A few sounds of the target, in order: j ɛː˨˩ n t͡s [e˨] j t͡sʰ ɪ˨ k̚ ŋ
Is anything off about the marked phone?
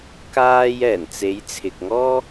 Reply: yes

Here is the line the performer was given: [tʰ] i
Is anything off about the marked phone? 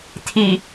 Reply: no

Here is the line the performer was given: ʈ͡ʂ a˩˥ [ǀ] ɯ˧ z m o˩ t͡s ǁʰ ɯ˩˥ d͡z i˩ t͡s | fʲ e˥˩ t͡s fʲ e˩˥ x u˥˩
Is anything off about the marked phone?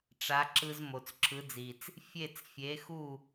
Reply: yes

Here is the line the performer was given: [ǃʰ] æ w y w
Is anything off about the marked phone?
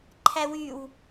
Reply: no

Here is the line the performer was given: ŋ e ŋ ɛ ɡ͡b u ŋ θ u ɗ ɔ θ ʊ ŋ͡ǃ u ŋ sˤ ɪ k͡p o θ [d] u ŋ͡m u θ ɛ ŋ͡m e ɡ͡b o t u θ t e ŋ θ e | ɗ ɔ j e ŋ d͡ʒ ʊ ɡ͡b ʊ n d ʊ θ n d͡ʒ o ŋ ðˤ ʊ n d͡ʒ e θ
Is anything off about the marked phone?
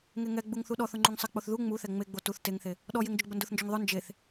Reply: yes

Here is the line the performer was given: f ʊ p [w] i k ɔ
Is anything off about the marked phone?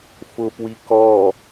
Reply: no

